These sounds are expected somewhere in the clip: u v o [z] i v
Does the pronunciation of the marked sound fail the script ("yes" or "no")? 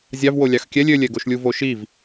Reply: yes